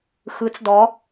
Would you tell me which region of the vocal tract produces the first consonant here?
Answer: velum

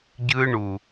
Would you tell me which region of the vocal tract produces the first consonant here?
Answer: palate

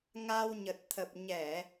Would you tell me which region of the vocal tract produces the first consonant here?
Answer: velum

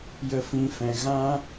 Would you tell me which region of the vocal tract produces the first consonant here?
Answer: palate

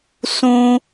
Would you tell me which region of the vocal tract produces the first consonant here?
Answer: tongue tip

